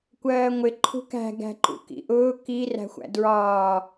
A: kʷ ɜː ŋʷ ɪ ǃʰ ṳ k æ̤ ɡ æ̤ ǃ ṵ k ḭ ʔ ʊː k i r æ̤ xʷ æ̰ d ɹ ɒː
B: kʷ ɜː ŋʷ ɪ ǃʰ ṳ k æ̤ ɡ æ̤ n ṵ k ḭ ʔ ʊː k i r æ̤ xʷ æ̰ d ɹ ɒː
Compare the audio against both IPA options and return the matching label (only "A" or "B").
A